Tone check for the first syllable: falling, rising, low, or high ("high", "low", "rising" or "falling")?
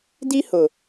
high